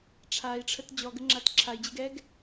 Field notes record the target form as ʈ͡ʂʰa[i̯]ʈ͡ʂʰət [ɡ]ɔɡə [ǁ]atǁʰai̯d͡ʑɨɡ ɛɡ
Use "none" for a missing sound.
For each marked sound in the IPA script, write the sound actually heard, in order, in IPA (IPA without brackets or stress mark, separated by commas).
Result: i̯, d͡ʑ, ŋ͡ǁ